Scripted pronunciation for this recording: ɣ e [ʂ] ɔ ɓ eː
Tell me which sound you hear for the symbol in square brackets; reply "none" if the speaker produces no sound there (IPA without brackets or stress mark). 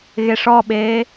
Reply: ʂ